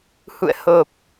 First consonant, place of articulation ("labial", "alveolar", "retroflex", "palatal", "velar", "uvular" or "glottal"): glottal